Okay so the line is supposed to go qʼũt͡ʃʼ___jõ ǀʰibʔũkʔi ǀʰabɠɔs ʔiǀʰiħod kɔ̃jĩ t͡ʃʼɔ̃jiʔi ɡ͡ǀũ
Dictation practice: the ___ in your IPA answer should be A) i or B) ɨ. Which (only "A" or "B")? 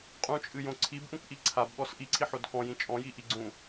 B